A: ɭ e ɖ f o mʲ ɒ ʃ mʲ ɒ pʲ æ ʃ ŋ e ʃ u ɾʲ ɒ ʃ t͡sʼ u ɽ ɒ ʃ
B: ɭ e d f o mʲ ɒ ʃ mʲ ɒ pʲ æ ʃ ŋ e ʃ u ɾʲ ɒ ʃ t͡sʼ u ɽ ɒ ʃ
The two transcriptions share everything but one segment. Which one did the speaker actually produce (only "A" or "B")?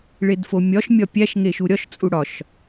B